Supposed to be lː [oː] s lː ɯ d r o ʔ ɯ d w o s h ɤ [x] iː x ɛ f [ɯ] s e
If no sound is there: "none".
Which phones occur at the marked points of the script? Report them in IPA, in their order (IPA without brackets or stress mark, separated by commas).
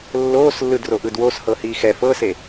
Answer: oː, h, ɤ